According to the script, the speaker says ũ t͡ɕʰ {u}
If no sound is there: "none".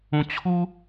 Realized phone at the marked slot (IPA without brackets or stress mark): u